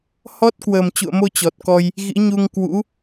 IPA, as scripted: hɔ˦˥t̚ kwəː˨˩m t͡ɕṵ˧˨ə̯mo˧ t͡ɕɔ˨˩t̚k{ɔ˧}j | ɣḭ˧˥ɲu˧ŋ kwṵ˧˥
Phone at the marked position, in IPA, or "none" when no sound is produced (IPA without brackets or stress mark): ɔ˧